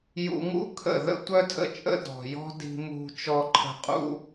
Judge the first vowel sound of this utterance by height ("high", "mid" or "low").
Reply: high